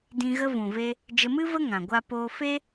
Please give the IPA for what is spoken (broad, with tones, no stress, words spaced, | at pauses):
dĩ˧ ɣə˧vũ˨ve˧ | d͡ʒə˧mɨ˦və˦ ŋã˨ɡʷa˧poː˧fe˦